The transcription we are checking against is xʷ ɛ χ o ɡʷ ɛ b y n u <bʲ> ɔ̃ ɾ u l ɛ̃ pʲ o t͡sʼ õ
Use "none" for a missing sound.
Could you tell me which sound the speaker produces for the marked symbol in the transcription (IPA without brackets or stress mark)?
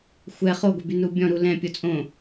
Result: bʲ